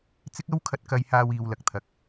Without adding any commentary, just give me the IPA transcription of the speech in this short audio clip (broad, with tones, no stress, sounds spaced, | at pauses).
t͡s ɪ˥ k̚ ɐ˥ w kʰ ɐ˧ t̚ k ɐ˧ j h aː˧ w iː˨ w l ɐ˨ k̚ t̪ʰ ɐ˨ k̚